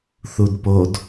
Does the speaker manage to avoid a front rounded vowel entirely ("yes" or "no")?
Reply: yes